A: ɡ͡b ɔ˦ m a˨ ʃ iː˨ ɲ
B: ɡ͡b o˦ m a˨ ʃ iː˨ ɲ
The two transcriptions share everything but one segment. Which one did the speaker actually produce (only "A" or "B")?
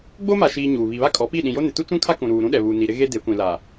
B